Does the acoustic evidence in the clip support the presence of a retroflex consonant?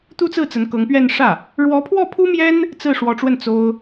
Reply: yes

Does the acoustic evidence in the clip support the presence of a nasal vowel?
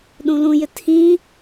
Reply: yes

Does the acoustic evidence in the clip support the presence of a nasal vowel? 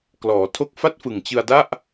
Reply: no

